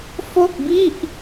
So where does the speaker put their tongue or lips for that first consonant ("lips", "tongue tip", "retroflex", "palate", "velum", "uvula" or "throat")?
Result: lips